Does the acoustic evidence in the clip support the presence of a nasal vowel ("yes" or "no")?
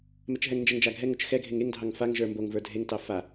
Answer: no